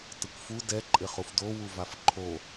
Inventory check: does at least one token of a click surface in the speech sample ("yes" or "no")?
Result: yes